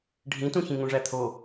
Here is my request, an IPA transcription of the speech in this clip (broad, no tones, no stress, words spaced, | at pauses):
ɖʱĩtũçĩ ŋũʐæt̪ʰo